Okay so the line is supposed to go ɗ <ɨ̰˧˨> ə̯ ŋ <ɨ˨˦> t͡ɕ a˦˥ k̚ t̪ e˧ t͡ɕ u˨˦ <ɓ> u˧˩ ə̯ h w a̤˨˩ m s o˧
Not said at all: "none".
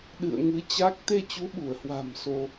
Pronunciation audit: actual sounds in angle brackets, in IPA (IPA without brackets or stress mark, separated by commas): ɨ̰˧˨, ɨ˨˦, ɓ